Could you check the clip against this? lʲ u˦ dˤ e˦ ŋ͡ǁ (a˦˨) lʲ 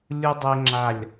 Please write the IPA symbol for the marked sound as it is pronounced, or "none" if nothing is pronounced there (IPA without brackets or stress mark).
a˦˨